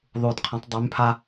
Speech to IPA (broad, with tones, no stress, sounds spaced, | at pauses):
ðˤ u˧ d qʰ ə̃˧˥ tˤ dˤ y˧˥ m pʰ a˥